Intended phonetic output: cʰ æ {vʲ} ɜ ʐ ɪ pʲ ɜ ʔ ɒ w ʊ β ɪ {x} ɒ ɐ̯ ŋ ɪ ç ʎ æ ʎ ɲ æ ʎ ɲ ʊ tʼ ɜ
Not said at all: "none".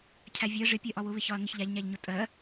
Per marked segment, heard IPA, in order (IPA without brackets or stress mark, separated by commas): vʲ, ç